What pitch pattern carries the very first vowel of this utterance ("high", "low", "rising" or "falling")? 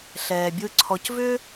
low